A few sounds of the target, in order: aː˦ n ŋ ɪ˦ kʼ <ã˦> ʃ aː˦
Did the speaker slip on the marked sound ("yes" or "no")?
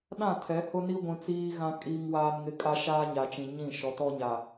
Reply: yes